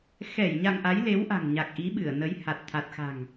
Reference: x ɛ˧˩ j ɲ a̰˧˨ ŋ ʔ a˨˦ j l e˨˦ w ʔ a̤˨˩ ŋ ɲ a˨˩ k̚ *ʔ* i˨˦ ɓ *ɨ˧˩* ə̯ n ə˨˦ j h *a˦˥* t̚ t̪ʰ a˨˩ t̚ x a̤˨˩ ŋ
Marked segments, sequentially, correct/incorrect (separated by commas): correct, correct, incorrect